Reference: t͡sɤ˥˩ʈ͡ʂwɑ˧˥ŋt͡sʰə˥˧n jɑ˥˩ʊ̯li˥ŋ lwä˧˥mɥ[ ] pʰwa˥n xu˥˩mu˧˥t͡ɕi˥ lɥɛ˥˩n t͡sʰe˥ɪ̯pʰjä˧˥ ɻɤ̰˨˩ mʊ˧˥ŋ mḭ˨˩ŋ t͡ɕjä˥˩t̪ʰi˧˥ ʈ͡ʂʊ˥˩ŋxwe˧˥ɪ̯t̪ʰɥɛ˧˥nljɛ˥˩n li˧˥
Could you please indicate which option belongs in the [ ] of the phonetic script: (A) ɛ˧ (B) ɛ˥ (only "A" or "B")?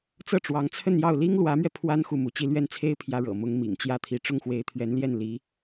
A